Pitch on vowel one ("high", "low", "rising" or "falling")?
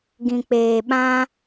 low